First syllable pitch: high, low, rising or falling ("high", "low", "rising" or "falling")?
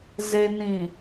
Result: low